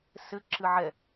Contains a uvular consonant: no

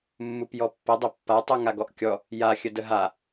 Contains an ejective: no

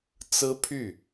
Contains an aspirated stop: yes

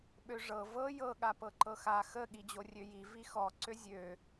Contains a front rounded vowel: yes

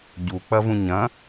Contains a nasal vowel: yes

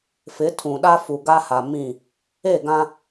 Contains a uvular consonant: no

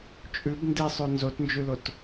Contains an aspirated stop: no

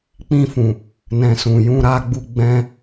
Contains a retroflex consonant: no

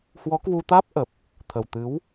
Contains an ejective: no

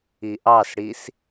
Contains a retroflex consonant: yes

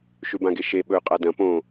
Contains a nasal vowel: yes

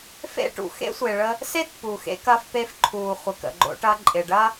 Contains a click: yes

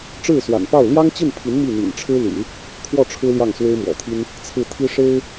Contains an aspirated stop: yes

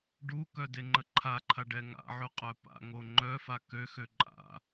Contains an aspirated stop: yes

